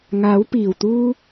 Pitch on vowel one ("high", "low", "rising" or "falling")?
rising